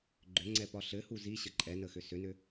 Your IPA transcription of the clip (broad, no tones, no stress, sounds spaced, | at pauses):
ɡ͡ǃ ʏ ŋ͡ǀ ɛ p ɒ ɬ ɘ h u z i ɕ ə ǃʼ ɛ n ə x ʏ s ʏ n ʏ